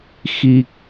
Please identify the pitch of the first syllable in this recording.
low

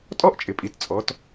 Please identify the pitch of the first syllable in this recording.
high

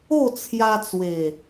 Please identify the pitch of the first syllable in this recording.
falling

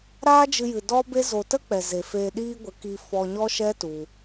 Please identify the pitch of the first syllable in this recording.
high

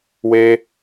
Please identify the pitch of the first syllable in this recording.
high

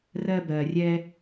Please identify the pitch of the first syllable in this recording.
high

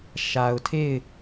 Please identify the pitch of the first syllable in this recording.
low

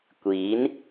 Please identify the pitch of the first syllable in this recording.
rising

